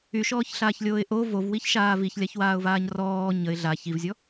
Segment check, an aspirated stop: absent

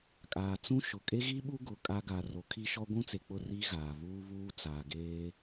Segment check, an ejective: present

